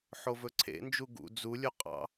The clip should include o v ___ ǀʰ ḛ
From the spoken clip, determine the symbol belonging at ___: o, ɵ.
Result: ɵ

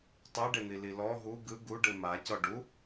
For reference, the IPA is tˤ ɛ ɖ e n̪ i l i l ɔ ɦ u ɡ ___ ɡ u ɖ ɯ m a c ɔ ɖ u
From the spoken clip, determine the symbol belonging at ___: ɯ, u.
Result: ɯ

